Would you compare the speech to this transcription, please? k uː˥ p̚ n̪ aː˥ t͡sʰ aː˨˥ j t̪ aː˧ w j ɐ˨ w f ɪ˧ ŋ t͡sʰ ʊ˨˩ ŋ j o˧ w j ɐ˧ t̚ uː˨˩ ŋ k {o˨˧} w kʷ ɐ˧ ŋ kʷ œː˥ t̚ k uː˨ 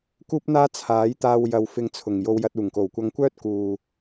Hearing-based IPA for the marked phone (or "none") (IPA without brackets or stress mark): o˨˩